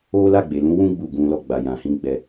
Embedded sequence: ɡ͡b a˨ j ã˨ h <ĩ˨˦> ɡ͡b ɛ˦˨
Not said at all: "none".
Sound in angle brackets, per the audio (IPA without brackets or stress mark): ĩ˨˦